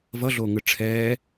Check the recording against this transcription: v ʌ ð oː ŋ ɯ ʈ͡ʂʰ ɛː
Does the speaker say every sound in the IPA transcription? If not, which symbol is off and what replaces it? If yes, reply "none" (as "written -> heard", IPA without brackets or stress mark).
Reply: ð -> ɮ